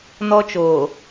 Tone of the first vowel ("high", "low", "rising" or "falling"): high